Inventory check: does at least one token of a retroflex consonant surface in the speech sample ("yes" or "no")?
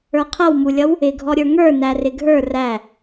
no